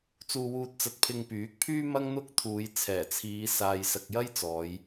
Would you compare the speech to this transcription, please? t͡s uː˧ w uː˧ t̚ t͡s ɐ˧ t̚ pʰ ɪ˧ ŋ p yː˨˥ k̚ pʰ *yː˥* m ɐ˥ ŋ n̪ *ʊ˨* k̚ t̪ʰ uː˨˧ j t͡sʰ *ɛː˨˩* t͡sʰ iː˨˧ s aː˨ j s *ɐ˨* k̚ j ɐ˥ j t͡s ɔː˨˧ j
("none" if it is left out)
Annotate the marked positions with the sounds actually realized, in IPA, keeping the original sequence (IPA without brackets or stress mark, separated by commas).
yː˥, ʊ˥, ɛː˨˩, ɐ˨